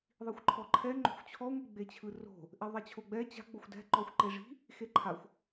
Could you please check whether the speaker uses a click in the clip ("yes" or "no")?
yes